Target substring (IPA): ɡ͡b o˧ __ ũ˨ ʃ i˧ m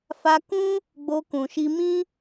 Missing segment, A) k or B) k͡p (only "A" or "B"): A